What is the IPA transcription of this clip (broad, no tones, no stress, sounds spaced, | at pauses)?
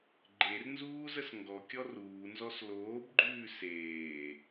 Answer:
ɡ͡ǃ e r n z uː z ə s ŋ ɡ ɔ kʲ ɔ r uː n z ɔ s l oː b ɡ͡ǃ ʉː s eː